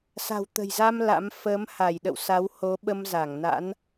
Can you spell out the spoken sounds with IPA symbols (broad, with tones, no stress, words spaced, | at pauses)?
sa̤˨˩w t̪ə̤˨˩jza˧m la̰˧˥m fəː˨˦mha˧˩jɗə̰˧˨w sa˨˦w ho˨˦ɓə˧mza˧˩ŋ na̰˧˥n